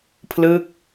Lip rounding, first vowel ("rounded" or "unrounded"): unrounded